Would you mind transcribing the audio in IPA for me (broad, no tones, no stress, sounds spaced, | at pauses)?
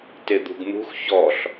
t e d̪ ṳ ɡ n̪ ṳ x ç ɔ ɬ